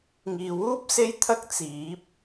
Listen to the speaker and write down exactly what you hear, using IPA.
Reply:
ŋ iː˨ w uː˥ p̚ s e˥ j t̪ʰ ɐ˥ k̚ t͡s iː˨˥ p̚

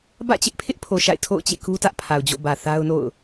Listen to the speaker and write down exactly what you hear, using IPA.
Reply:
b ä̰˦˨ t͡ɕ ɪ˦ ʔ pʰ ɪ˦ ʔ pʰ o˨ ʃ a̰˦˨ ɪ̯ tʰ o̰˦˨ ʊ̯ t͡ɕ ḛ˦˨ k u˦ t ä˦ ʔ pʰ a˨ ʊ̯ d͡ʑ o̰˦˨ b ä˨ θ a˦ ʊ̯ n o̰˦˨ ʊ̯

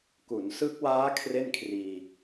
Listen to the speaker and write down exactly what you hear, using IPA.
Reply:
k u˩˦ n s ɯ˦˥ k̚ w aː˦˥ kʰ r e˥˩ n kʰ r iː˧

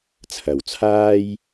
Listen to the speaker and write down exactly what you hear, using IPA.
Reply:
t͡sʰ ɐ˨˩ w t͡sʰ aː˥ j

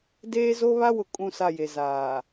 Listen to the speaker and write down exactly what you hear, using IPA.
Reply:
d eː˦ z o˦ β a˦ w ʊ˨ kʼ ũ˦˨ s a˦˨ j e˨ z aː˨

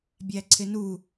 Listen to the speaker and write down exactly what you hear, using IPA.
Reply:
bʲ æ ǀʰ ɪ n u

